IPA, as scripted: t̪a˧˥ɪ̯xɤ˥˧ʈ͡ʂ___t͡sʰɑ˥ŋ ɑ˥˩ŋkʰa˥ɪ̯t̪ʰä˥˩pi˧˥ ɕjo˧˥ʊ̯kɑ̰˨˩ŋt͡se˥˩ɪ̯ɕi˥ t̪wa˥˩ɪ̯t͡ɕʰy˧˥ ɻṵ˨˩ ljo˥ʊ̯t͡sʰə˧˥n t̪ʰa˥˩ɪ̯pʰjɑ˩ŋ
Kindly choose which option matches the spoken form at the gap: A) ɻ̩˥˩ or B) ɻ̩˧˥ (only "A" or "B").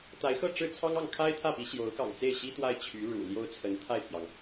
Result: A